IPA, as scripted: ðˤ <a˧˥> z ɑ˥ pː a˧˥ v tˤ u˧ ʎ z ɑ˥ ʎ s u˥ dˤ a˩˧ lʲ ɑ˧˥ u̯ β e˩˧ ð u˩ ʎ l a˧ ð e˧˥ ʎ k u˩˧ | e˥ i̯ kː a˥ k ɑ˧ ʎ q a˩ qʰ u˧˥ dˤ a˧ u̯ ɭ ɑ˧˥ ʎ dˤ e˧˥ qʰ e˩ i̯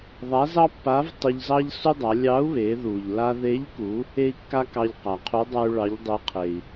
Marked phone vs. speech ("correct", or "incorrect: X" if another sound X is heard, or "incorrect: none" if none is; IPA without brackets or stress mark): correct